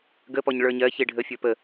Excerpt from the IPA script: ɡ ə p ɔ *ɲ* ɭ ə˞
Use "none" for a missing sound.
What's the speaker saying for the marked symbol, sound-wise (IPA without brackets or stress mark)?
ɲ